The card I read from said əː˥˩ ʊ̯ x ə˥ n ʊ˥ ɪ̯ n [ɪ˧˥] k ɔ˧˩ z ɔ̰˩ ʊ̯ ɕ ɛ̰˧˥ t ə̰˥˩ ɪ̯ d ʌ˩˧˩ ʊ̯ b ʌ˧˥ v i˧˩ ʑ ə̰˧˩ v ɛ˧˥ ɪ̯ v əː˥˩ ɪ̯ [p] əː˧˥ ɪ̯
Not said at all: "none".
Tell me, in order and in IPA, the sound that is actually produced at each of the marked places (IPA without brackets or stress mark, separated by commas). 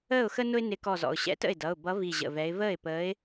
ɪ˧˥, p